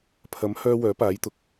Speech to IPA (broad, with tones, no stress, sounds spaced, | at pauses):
pʰ ɐ˨˥ m h œː˧ w œː˨˥ p aː˨˥ j t̪ ʊ˨ k̚